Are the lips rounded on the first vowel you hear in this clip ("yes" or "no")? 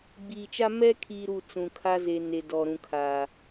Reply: no